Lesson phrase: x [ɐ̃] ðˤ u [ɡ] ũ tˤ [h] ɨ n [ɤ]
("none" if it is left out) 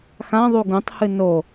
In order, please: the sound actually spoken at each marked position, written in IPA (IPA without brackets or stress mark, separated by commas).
ã, ɡ, h, o